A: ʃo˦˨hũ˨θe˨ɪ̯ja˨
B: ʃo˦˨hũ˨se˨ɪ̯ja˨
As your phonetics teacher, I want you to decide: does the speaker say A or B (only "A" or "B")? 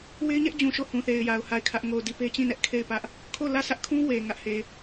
A